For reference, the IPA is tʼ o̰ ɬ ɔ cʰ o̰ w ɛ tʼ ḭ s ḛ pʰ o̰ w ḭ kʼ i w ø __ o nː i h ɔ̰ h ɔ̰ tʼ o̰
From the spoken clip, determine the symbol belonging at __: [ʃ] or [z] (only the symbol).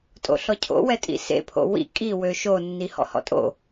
ʃ